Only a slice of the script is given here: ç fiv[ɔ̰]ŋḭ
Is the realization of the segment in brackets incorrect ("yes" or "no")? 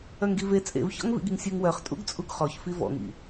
no